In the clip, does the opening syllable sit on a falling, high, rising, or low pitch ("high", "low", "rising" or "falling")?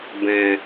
low